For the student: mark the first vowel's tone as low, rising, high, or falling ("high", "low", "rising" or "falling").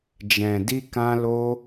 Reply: low